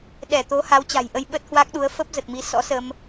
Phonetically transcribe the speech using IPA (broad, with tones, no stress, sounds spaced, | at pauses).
ɗ ɛ˧˩ t̪ o˨˦ h a˨˦ w t͡ɕ a̤˨˩ j ʔ ə˧ j ɓ ə˦˥ t̚ h w a˦˥ k̚ ɗ u˨˦ ə̯ f ə˦˥ p̚ z ə˨˩ t̚ m i˨˦ s ɔ̰˧˥ s ə˧ m